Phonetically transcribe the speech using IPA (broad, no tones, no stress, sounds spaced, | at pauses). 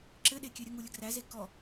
ǁ ɘ ɗ e kʲ ø ɾʲ ə ŋ u lʲ ə ɡ r æ z e k ɔ